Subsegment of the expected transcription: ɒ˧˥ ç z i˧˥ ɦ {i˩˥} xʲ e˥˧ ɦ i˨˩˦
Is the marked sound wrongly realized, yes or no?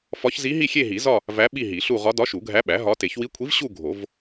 yes